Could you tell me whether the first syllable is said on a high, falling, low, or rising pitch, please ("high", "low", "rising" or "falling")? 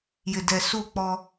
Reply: low